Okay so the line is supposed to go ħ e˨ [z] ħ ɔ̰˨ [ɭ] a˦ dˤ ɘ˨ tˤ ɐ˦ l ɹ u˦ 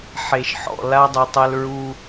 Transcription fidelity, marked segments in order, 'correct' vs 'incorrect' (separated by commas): incorrect, incorrect